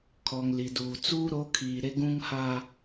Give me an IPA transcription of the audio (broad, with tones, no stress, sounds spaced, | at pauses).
kʰ ɔ˨ ŋ l i˨ d uː˨ t͡s uː˦ ɾ o˨˦ kʰ iː˨ ɾ e˦ ɡ ũ˦ ŋ h aː˦